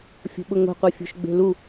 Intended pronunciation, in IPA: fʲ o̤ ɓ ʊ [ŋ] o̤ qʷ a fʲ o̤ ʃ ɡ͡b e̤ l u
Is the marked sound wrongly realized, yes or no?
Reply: no